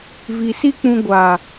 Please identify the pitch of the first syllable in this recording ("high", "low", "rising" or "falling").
low